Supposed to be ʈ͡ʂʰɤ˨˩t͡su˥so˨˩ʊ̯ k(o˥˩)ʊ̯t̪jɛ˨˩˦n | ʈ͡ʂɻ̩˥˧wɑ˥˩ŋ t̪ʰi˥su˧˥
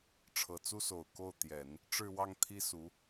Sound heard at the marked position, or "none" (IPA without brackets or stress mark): o˥˩